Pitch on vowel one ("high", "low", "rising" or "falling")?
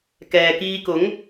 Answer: low